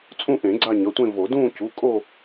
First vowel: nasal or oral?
nasal